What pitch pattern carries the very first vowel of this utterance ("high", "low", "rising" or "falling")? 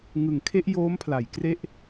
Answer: low